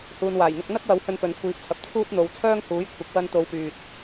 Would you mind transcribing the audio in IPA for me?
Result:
huː˨nwaː˨˩jn̪ʊ˧k̚ n̪ɐ˥k̚wɐ˨˥w hɵ˧npɵ˨nkʷʰiː˨˥p̚t͡sʰɐ˨p̚ t͡sʰuː˥t̚n̪o˨˧w t͡sʰœː˥ŋhuː˨˥jkʷʰɪ˨˥k̚ wɐ˧n t̪o˨˧wpyː˨t̚

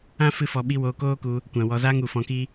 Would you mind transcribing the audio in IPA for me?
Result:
ã˦ fɨ˦fɔ˧ɓi˦ woː˧koː˦ku˧ | kʷã˨wɔ˧zaː˦ŋ u˨fɔ̃˧ki˦

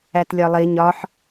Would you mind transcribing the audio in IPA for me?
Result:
ætlʲɒlˠi ɲɒħ

